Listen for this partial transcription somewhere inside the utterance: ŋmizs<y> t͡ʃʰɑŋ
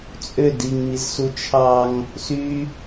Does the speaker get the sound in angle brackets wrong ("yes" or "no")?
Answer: yes